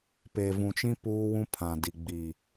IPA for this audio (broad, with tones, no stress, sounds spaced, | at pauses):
p e˨ v ũ˨ t͡ʃ ĩ˦ p uː˦ w ũ˦ pʰ ã˨ d i˨ ɡ͡b iː˨